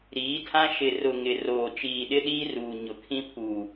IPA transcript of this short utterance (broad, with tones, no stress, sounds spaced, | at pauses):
ɾ iː˨˦ tʰ ã˦ ʃ ɪ˨ r ʊ˨ ŋ ɪ˨ r oː˨ t͡ʃ iː˨ ɗ ɪ˦ ɗ iː˦ r uː˨ ɲ ʊ˨ kʰ ĩ˦ pʰ uː˨